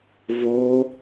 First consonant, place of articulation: labial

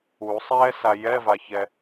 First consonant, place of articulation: alveolar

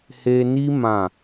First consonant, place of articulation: glottal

